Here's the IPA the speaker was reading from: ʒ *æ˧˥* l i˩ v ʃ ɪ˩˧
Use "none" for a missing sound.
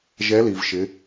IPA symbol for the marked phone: ɛ˧˥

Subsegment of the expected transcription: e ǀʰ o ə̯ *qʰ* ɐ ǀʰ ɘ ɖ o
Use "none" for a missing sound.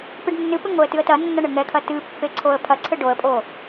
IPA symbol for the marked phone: pʰ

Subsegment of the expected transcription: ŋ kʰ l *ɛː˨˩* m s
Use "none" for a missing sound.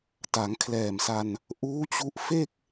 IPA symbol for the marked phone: ɛː˨˩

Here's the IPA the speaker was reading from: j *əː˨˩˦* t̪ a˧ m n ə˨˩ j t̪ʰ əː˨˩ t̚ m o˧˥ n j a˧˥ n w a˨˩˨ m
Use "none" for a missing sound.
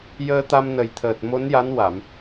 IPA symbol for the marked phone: əː˧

